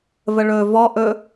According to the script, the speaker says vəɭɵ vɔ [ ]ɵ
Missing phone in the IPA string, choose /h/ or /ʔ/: ʔ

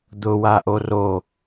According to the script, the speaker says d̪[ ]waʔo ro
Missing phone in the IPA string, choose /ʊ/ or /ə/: ʊ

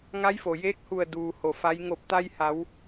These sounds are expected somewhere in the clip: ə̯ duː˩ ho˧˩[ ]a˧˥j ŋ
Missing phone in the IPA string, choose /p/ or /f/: f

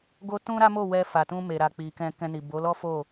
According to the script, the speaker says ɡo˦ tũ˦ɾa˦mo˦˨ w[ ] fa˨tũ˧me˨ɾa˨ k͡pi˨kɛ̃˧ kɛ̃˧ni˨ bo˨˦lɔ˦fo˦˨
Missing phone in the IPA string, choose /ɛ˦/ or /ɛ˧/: ɛ˧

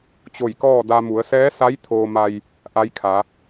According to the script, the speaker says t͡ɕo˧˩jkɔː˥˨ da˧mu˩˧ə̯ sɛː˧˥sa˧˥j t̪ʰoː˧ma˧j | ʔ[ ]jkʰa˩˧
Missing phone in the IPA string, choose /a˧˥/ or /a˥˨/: a˧˥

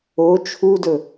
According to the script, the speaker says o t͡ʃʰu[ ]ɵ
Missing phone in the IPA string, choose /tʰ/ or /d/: d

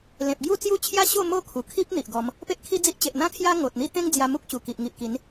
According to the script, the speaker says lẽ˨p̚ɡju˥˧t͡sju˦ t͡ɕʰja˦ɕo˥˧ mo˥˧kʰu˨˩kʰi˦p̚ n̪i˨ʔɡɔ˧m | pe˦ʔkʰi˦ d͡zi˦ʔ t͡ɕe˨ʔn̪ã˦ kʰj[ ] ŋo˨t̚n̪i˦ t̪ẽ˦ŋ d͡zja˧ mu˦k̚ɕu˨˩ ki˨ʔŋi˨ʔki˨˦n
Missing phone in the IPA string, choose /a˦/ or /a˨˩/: a˦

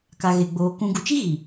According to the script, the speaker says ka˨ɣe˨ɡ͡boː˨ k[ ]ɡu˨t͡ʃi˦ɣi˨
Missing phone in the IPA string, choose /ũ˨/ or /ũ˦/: ũ˨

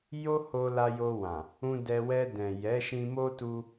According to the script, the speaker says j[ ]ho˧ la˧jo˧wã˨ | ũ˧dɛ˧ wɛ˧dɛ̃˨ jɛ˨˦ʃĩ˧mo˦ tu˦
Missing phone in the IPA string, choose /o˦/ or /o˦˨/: o˦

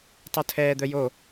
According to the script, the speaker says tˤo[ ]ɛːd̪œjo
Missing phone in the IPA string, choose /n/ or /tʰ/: tʰ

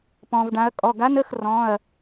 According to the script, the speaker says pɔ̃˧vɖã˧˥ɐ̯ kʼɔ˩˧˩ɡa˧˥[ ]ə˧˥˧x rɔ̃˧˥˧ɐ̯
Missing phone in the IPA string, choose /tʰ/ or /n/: n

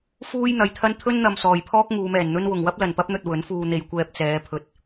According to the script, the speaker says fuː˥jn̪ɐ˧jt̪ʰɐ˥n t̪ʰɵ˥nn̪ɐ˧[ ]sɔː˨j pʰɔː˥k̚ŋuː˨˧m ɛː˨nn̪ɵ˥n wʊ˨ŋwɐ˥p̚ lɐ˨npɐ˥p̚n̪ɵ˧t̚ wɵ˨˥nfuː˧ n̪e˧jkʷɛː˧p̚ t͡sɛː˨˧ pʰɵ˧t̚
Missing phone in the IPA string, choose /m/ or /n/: m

